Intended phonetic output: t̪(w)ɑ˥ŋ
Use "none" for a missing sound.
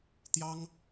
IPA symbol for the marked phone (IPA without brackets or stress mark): j